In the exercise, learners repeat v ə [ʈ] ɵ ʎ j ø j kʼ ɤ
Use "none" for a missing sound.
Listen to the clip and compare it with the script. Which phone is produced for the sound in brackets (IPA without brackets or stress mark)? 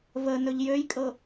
n